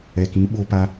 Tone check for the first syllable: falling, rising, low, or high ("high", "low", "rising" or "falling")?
low